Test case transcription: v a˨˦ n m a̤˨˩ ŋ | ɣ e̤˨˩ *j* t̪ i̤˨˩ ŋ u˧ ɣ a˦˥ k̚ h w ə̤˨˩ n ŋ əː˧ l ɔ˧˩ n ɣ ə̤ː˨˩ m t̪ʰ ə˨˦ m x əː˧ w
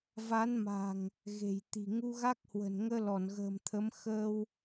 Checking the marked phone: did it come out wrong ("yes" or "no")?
no